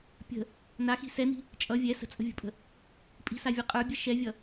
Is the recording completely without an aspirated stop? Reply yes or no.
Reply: yes